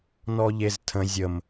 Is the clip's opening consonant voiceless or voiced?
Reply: voiced